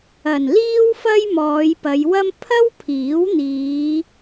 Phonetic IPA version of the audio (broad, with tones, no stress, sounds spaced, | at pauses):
ɐ˨˩ n l iː˥ w f ɐ˥ j m ɔː˨˧ j p ɐ˨˧ j w ɐ˥ m pʰ ɐ˥ w pʰ iː˨˥ w n̪ iː˨˧